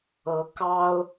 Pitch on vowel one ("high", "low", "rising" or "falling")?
rising